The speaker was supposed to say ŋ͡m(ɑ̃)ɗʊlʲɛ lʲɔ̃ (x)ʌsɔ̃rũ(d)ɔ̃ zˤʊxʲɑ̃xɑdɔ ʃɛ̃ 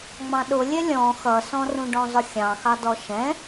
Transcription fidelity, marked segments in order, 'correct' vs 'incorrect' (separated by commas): correct, correct, incorrect